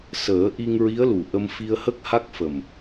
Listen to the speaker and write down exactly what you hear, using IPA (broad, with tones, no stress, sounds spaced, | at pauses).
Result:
s əː˨˩˦ ʔ i˧ ŋ ɹ i˧˥ ə̯ l u˨˩ ʔ ə˧ m f i˧ ə̯ h ə˦˥ k̚ h a˦˥ k̚ f ə˨˩ m